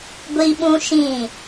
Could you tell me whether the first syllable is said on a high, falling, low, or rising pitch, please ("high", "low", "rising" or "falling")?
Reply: high